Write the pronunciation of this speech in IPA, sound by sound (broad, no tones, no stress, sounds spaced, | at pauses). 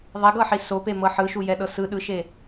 ðˤ ɛ ɡ ɤ ħ i s o p e m ɤ ħ ɯ ʃ u j ɛ ɗ ɤ s ɯ ɗ ɯ ʃ e